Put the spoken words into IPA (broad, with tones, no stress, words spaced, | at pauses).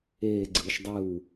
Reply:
eː˥˧ɡ͡ǀɯ˧ʃ dˤɯ˥˩w